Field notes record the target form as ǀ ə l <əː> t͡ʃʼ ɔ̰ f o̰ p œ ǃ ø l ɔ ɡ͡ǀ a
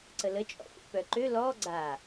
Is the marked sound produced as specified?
no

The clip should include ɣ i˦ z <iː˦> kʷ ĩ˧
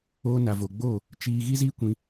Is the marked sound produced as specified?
yes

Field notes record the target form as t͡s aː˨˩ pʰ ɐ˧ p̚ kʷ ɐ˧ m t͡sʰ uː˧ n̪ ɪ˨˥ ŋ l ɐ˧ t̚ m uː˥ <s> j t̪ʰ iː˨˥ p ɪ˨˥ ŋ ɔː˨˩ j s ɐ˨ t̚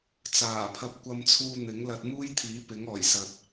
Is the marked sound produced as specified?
no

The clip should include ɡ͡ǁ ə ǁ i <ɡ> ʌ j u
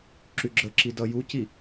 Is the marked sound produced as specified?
no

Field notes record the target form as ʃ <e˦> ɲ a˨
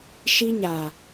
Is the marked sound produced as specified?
no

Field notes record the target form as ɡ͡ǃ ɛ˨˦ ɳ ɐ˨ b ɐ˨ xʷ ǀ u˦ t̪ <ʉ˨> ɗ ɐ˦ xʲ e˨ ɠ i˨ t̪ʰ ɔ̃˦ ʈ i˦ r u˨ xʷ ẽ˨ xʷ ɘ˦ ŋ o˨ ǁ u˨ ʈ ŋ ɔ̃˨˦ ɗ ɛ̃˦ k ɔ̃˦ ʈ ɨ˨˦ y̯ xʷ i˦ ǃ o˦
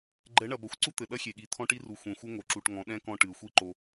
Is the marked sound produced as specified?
no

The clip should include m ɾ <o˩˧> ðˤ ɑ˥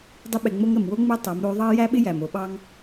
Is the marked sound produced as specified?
yes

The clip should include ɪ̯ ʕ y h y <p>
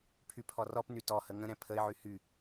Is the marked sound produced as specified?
no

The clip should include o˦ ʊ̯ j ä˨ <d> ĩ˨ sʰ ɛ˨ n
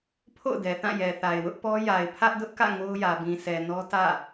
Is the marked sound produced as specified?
no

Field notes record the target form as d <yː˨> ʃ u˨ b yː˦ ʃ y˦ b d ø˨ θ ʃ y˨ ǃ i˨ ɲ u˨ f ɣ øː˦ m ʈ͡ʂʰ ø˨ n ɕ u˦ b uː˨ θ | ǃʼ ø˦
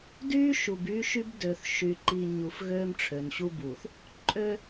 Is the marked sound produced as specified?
no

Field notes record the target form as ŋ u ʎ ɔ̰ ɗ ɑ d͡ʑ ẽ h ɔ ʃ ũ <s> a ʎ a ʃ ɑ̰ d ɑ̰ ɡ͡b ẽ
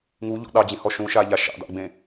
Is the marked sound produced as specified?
no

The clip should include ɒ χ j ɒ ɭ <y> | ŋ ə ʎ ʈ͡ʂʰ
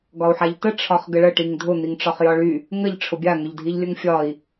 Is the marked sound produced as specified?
yes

